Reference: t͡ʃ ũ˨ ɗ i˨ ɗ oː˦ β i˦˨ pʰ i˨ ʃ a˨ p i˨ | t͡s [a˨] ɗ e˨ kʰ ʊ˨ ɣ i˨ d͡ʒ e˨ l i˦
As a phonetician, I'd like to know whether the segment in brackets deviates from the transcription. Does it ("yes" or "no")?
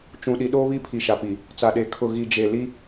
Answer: no